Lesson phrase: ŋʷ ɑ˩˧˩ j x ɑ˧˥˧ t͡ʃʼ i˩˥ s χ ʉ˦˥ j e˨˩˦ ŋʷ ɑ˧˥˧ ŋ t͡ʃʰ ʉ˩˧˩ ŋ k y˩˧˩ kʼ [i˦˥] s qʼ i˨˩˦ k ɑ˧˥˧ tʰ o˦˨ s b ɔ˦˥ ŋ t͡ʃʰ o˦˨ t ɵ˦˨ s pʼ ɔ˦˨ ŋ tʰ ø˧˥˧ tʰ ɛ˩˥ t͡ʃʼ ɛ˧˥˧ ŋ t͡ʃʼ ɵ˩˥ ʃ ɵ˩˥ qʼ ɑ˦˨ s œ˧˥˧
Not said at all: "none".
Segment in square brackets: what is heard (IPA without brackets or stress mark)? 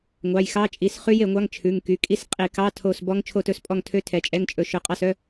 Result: i˦˥